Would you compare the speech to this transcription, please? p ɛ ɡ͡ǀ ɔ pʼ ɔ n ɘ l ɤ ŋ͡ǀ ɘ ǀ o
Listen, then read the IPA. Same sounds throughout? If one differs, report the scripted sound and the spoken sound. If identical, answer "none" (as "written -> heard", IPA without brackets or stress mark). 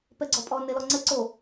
ɤ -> ɔ